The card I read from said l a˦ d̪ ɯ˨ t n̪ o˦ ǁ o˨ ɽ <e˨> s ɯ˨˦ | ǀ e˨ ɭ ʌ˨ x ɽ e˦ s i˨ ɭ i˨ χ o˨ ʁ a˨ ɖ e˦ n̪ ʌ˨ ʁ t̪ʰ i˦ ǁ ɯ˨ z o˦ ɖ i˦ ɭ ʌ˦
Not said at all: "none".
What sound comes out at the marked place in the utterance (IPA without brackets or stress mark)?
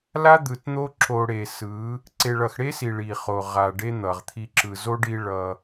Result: e˨